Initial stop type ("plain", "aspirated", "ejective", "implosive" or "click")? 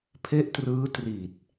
aspirated